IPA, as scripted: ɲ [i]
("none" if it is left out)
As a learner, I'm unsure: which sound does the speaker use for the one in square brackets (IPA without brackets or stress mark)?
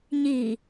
i